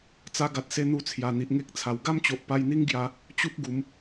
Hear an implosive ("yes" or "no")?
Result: no